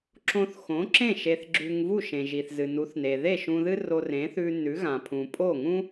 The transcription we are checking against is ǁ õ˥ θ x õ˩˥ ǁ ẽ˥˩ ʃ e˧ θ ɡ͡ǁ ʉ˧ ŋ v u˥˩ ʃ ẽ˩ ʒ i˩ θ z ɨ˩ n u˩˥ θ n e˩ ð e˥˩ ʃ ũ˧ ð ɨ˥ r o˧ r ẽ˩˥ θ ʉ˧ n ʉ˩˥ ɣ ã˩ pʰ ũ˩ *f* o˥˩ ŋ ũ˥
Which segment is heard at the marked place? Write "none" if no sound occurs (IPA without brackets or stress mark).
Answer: pʼ